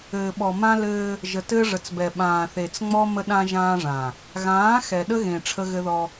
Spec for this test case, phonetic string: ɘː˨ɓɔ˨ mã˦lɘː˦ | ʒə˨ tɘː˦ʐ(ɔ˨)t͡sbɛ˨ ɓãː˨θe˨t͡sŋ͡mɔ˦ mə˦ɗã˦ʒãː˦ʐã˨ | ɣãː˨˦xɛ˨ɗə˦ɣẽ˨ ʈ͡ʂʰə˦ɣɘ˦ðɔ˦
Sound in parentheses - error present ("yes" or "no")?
yes